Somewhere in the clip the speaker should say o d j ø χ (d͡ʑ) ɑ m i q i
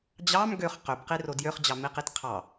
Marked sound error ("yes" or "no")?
no